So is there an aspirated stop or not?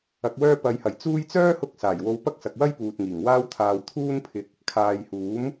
yes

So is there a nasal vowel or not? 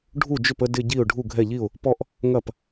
no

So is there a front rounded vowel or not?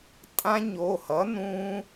no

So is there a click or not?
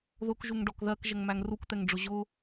no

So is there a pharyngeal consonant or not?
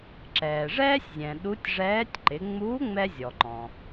no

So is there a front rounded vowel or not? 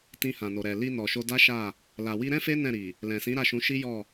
no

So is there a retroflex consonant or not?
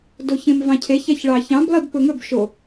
yes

